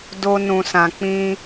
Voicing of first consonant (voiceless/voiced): voiced